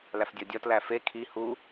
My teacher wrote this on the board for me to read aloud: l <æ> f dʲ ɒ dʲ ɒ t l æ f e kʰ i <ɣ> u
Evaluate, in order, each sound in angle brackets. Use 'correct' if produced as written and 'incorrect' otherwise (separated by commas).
correct, incorrect